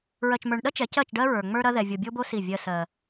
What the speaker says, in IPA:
ɹ ɜ˨ t͡ʃ m ə˞˨ ɳ ɗ ɐ˦ t͡ʃ ɛ˨˦ c ɜ˦˨ t͡ʃ ɖ ɜ˦ ɹ ə˞˨ ŋ͡m ə˞˦ ɾ ɐ˦ ð ɛ˨ vʲ o˨ bʲ o˦ b o˦ s i˦˨ vʲ ɜ˦ s ɜ˦

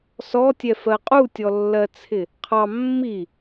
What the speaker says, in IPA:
s ɔ tʲ ɛ f ɜ qʼ u tʲ ɔ lː ɜ t͡sʰ ɪ | qʰ ɑ mː i

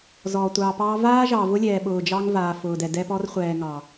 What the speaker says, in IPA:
z ɔː˨ tʷ ɑː˨ p ɑː˦ v aː˦ ʒ ɑ˨ v ʊ˦ lʲ ɛː˨ ɓ ʊː˨ d͡ʒ ɑ˦ ŋ v aː˨ f ʊː˨ d ɛ˨ d ɛ˦ p ɔ˦ r χʷ ɛː˨ ŋ ɑ˨

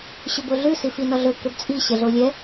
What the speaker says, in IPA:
ɕ ø b o ɮ ʉ s i f i n ɔ ɮ ɵ k ø b t͡sʼ i ɕ ɛ ɮ o lʲ ɛ

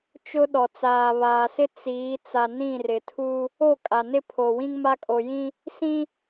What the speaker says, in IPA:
t͡ʃ ʊ˦ ɗ ɔ˨ t͡s aː˨ β aː˨ s ɪ˦ t͡s iː˨˦ t͡s a˨ n ĩ˦˨ r ɪ˨ tʰ u˦ | o˦˨ kʼ a˨ n ɪ˦ pʰ o˨ w ĩ˦ ŋ m a˦ kʼ o˨ j ĩ˦ | s ĩ˦

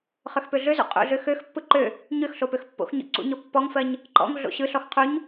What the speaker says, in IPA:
χ ø x p ø ɮ ø z ṵ qʼ ṵ ɮ ø x ø x pː ɯ ǃ ø | ɲ ø x ɬ o p ø x pː o̰ x ɲ ɔ̰ ǀ ṵ ɲ ɔ pː ɔ ŋ f ɜ ɲ | ǃ ɔ̰ ŋ ɮ o̰ ɕ ɯ ɬ ɔ x qʰ u ɲ

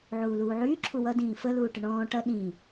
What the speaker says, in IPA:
ʕ uː l uː ʕ yː ǁʰ u w ʌ d ĩː f ə l uː ʈ ə ɳ ɔ̃ː ʈ ʌ ɗ ĩ

